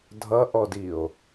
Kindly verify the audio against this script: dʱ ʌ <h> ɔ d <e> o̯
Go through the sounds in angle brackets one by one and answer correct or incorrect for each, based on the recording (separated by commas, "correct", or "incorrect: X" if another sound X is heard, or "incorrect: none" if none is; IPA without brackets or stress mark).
incorrect: ʔ, incorrect: i